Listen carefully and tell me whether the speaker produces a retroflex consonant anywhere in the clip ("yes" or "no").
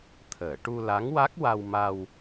yes